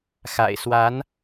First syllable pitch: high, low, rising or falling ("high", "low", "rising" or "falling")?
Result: low